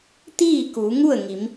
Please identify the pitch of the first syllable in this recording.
falling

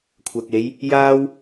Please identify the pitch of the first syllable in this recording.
low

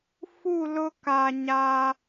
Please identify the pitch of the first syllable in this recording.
falling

